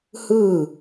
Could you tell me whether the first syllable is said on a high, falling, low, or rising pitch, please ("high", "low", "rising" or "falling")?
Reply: falling